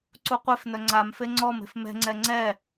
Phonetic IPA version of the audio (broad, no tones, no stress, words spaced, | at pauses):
ǀuqʷefnœ ŋ͡ǀam feŋ͡ǀɔme̤f mɛ̤ŋ͡ǀɛ ŋ͡ǀɛ